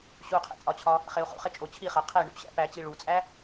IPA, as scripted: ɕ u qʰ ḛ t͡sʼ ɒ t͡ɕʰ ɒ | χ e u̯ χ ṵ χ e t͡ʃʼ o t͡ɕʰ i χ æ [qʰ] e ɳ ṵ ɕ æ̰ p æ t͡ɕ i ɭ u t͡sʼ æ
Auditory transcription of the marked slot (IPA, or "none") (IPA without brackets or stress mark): qʰ